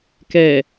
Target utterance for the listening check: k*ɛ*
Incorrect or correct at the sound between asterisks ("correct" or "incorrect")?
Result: correct